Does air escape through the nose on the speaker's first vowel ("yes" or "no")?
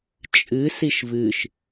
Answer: no